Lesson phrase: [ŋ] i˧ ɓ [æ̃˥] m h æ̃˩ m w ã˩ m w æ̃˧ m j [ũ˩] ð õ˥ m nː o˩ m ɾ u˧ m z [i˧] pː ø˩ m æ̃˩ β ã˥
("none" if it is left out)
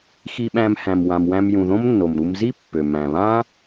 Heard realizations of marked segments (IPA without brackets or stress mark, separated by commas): x, æ̃˧, ũ˩, i˥